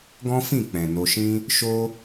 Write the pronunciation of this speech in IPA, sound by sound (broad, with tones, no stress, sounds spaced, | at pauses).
ɡ ɔ̃˦ f ĩ˦˨ k͡p ɛ̃˨ n o˧ ʃ ĩ˦ | ʃ o˦